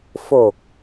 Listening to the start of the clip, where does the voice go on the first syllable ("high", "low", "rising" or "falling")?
low